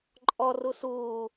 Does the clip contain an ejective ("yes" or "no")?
yes